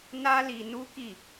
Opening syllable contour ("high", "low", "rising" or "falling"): high